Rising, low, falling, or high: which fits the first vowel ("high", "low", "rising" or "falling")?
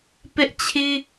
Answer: high